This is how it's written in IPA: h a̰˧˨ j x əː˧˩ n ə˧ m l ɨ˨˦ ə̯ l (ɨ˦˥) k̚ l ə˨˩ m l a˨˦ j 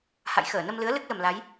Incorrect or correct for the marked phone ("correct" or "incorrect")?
correct